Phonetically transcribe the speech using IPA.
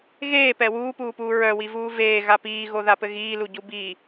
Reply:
ɣ eː p ɛ w uː p uː p uː ɹ œ w i v uː v eː ɣ a p iː ɣ o ð a p ɘ ɣ iː l u ɟ u b i

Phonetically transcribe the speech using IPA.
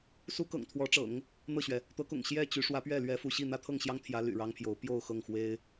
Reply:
s u˥ k ɤ̰˨˩ ŋ t̪ʰ w ɔ˧˥ ʈ͡ʂ ɤ̰˨˩˦ ŋ | n̪ ɤ˥˩ ɕ ɥ ɛ˩ | t̪ ɤ˧˥ k ʊ̰˨˩ ŋ ɕ j ɛ˥˩ t͡ɕ y˧˥ ʂ w ä˧˥ p ɥ ɛ˥˩ l ɥ ɛ˥ f u˥˧ ɕ i˥˩ n̪ ä˥ t̪ʰ ɤ˥˩ ŋ ɕ j ɑ˥ ŋ t̪ʰ j ä˧˥ l y̰˨˩ ɻ ɑ˥ ŋ pʰ j o˧˥ ʊ̯ p j o˥˧ ʊ̯ x ɤ˥˩ ŋ x w e˥ ɪ̯

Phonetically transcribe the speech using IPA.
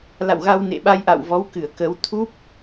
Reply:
l a̰˧˨ w ɣ a˧ w n ḛ˧˨ ɓ a˧ j ʔ a̰˧˨ w v ɔ˨˦ w k ɨ˧˩ ə̯ k ə˨˦ w t̪ʰ u˦˥ p̚

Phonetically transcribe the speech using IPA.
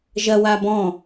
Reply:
ʒ ɐ w a b ɔ̃

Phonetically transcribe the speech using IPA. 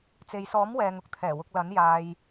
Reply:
t͡s e˨ j s ɔː˨˥ m w ɛː˨ ŋ ʊ˥ k̚ t̪ʰ ɛː˨˩ w ʊ˨ k̚ l ɐ˨˥ n j aː˧ j

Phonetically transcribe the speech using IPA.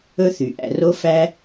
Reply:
ɵ˦ θ y˩ ʔ æ̰˨ r o˦ f æ˦

